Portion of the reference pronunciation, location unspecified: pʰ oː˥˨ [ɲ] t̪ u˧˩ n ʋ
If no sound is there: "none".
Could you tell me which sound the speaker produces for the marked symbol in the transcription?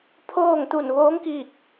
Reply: ŋ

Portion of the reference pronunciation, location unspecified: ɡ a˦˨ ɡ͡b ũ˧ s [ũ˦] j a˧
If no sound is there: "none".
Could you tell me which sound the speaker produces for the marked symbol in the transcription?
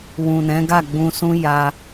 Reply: ũ˦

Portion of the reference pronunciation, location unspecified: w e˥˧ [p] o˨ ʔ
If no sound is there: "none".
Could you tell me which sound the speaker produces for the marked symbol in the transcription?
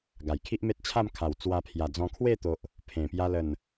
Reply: t̪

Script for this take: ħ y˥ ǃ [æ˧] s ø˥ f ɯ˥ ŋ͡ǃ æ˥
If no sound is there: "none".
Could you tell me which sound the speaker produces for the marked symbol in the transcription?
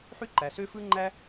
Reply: æ˩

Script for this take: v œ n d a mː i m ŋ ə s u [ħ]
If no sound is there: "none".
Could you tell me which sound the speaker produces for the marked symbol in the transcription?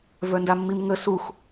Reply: x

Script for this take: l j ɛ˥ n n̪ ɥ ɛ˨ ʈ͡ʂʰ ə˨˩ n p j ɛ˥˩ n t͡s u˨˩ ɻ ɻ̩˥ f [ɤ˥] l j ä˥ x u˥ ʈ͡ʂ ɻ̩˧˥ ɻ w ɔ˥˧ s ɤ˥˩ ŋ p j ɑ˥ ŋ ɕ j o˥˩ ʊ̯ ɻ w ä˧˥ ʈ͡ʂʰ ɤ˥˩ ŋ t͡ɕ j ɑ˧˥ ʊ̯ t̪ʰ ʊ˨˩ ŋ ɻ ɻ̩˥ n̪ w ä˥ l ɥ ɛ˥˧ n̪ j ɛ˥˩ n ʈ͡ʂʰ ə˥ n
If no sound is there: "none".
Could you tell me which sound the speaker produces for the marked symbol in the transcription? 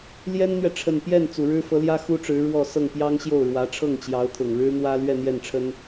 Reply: ɤ˧˥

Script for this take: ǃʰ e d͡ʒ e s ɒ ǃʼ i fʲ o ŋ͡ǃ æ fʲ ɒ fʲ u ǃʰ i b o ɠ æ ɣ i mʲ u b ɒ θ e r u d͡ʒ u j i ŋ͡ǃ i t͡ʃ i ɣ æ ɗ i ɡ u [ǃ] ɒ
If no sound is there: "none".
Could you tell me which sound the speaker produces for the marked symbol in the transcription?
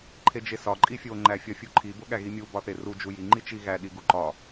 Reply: ǃ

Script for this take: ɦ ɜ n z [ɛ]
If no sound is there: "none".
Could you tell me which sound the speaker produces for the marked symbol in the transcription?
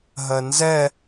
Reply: ɛ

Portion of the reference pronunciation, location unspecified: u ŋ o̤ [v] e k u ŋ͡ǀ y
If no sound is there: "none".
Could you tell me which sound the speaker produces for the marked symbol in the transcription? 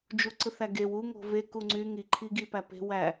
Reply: v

